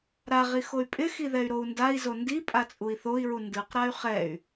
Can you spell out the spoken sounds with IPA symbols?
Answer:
ɾ a ʁ i x o y̯ pʼ ɪ x i ð ɛ y̯ ɾ o u̯ n d a i̯ z o n d i pʼ a t͡sʼ u i̯ θ o i̯ ɹ u n d ɯ q ɾ a y̯ χ ɛ y̯

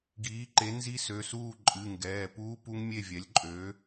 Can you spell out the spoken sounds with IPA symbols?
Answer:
ɡ iː˩˥ ǃ e˩˥ n z i˦˥ s ø˩˧˩ s uː˥˨ ǃʼ ɨ˩˧˩ ŋ ɡ ɛː˩˧˩ p uː˦˥ p u˦˥ ŋ mʲ e˥˨ vʲ ɛ˩˥ lʲ ǃʼ øː˩˥

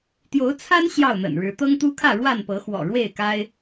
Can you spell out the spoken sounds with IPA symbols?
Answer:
t̪ j o˨˦ ʊ̯ t͡sʰ a˦ n ɕ j ɑ˥˨ ʊ̯ n̪ ə̰˨˩ n ɻ ɻ̩˨˦ t̪ ɤ˦ ŋ t̪ u˦ kʰ ä˥˨ ɻ w a˥˨ n p ɤ˨˦ x w ɔ̰˨˩ ɻ w e˥˨ ɪ̯ k a˦ ɪ̯

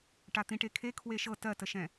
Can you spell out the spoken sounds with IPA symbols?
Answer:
ʈ a t̪ ĩ ʈ e kʰ e kʰ w e ʃ ɤ t ɜ t ə ʃ ɛ̃

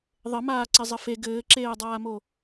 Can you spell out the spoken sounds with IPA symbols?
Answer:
ðˤ ɘ m aː ǀ i zˤ ɘ f e ɡ ɘː ǁ eː dˤ aː m o

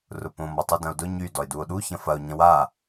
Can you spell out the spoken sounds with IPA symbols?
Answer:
r ʊ p õ m ɔ tˤ u d ɐ̃ o̯ d ʊ ɲ y d ɔ e̯ d u o̯ ɗ u ç ɐ̃ f ɐ o̯ ɲ ɐ̃ w a

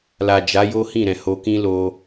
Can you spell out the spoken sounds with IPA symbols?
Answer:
l a˨ d͡ʒ a˨˦ j o˦ h ĩ˦˨ ɾ ɛ̃˨ h o˧ k ĩ˦ l o˧

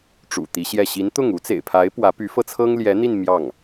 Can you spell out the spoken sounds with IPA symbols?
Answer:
ʈ͡ʂ ṵ˨˩ t̪ i˧˥ ɕ j ɛ˥˩ ɕ i˧˥ n t̪ ʊ˥˩ ŋ u˧˥ t͡s ḛ˨˩ ɪ̯ pʰ a˧˥ ɪ̯ p w ä˧˥ p y˧˥ f ɤ˧ t͡sʰ ɤ˥ ŋ l j ɛ˧˥ n̪ i˥˧ n m j ɑ˥˩ ŋ

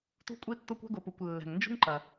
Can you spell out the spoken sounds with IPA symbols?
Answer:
t ṳ˥ kʷʼ i˥ tː o˥ kʷ ɛ̤˥ ɡ o˩ p u˩ kʷ lː ɛ̤˩ ŋ n d͡ʒ ṳ˥ ŋ ǃ ɐ˩

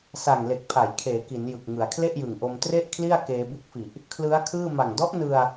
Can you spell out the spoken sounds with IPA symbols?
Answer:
s a˨˩ ŋ l e˨˩ k̚ pʰ a˩˦ j kʰ eː˩˦ k i˩˦ n j ɯ˨˩ k̚ ŋ ɯ˩˦ a̯ kʰ l e˥˩ ʔ j ɯ˨˩ ŋ ʔ o˧ m t r e˥˩ ʔ kʰ l i˥˩ a̯ k eː˧ b u˦˥ k̚ f i˨˩ ʔ | kʰ l ɯ˦˥ a̯ kʰ ɯː˥˩ m a˨˩ ŋ d ɔ˦˥ ʔ n ɯ˧ a̯

